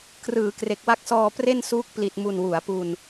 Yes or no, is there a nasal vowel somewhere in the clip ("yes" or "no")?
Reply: no